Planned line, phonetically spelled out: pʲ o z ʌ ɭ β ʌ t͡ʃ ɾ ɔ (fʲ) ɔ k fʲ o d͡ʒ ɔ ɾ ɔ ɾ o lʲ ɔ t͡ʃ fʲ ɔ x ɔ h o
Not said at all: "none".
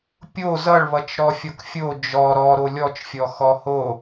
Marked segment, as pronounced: fʲ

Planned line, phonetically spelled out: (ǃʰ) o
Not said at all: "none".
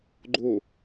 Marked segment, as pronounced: ɡ͡ǃ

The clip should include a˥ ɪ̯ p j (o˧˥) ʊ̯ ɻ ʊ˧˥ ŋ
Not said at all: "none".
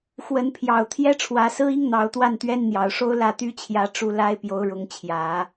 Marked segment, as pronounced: o˧˥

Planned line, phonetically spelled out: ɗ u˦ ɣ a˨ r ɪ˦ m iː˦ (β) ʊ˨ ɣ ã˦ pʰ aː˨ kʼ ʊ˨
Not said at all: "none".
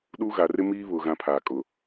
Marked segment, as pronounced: β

